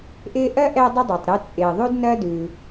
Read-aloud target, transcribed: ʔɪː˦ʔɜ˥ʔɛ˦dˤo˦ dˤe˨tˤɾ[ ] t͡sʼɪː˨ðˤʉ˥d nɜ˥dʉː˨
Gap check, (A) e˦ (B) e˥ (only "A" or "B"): A